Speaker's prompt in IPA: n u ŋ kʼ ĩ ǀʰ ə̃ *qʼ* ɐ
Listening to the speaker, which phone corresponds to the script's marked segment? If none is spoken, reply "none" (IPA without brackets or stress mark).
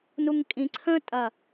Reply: tʼ